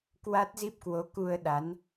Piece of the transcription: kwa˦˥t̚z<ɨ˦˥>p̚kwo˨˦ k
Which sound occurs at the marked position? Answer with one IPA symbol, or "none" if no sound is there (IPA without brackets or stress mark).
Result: i˦˥